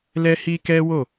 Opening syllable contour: high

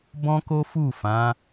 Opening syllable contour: high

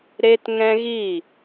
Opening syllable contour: high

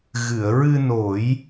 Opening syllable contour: low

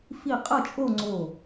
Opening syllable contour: falling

